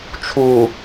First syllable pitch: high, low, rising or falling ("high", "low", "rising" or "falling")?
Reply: low